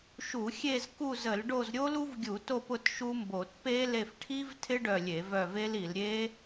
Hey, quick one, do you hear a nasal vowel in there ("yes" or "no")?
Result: no